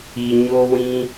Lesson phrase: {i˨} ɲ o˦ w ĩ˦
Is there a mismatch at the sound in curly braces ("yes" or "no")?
no